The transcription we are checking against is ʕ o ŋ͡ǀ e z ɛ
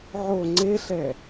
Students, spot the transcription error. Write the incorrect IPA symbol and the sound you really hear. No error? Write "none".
z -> ɬ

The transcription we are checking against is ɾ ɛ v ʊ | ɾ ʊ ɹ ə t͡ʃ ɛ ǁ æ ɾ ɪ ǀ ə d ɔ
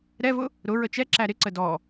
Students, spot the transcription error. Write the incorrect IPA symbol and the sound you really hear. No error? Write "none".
none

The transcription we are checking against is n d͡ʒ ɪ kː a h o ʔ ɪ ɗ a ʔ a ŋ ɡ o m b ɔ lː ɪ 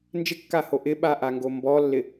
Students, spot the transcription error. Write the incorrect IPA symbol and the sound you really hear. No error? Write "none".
ɗ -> ɓ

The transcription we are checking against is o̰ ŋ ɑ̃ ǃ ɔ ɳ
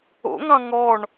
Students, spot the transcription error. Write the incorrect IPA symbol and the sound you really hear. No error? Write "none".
ǃ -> ŋ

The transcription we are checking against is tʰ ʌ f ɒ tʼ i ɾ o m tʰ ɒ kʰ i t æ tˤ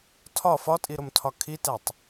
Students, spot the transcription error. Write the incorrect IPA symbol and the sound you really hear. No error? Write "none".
ʌ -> ɒ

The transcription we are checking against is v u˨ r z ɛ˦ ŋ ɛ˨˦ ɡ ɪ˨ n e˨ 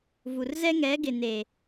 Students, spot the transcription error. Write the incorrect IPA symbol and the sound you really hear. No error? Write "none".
none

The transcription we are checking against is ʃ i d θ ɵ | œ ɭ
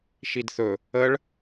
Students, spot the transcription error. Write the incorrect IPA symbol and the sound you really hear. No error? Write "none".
œ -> ə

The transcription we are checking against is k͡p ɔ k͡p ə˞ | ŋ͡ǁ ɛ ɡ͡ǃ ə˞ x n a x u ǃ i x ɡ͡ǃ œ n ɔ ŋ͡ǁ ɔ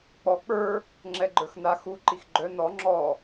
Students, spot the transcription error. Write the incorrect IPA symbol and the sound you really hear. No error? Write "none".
none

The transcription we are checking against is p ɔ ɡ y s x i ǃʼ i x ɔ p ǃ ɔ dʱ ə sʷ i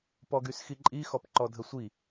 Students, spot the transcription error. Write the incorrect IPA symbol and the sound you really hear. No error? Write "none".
none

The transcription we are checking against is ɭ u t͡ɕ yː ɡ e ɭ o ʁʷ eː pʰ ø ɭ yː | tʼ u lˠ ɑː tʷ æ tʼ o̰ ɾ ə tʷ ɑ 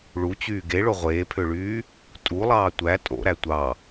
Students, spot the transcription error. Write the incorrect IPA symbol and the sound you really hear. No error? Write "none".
ə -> æ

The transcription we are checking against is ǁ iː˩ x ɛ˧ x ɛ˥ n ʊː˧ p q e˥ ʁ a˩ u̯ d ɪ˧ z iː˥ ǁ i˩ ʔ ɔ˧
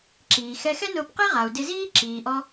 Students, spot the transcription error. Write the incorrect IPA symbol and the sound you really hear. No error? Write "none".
i˩ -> iː˩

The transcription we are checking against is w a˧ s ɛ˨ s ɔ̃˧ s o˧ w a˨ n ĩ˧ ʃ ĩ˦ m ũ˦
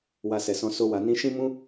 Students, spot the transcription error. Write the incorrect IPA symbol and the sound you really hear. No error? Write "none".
none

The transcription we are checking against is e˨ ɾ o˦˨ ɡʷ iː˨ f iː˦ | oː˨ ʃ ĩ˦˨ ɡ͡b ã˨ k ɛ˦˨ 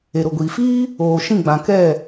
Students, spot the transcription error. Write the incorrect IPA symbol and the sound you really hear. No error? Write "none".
o˦˨ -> o˨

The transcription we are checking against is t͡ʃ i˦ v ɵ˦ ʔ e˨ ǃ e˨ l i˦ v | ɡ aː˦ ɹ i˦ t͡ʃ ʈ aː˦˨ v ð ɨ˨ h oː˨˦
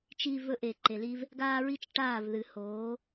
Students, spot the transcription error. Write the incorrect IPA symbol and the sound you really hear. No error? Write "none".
none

